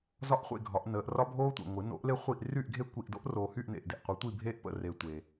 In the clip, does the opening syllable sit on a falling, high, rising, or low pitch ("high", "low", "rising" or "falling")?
high